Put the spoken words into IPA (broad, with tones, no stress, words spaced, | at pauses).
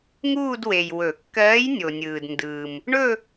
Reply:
ŋuː˥˧dwe˨j wɵ˨˩˦kːɜː˧˥j nʲo˨nʲɯː˨dndɯː˨m | ɳɵ˥˧